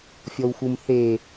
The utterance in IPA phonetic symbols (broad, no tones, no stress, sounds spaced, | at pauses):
fʲ ɔ w x u m θ e